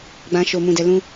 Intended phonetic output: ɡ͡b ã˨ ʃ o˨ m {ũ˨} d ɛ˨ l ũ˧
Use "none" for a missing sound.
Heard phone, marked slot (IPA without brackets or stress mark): ũ˨